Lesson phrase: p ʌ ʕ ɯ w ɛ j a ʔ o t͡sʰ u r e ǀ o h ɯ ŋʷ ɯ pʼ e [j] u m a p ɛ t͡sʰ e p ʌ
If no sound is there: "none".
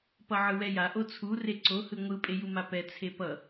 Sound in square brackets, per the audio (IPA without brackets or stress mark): j